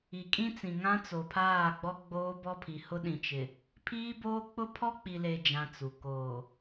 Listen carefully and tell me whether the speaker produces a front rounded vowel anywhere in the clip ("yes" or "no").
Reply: no